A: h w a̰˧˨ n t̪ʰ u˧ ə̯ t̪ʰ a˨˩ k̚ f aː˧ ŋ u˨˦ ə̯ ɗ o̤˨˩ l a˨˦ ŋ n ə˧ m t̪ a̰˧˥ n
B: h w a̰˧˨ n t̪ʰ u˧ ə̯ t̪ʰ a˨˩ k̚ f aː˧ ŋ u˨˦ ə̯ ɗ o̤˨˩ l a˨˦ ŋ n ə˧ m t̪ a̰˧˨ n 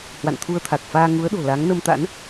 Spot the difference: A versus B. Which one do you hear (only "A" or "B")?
A